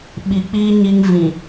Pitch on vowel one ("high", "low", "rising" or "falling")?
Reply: low